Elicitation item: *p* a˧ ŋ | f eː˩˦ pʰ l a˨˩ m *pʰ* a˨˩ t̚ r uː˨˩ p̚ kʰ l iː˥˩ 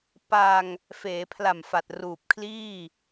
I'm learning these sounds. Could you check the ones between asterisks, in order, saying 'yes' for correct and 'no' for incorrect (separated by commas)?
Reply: yes, no